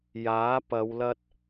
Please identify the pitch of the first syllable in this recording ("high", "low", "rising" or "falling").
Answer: rising